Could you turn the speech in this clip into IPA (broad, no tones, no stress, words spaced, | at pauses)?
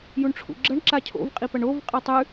juɳʈ͡ʂʰṵɡ͡ǁɐɳ ǁacʰo̰v qʼipɐɳov qʼatˤʉ